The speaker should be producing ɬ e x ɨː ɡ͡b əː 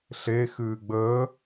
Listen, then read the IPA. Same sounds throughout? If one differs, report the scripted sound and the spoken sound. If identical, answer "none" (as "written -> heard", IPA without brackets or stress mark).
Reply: none